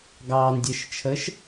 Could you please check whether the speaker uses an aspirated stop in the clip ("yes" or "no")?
yes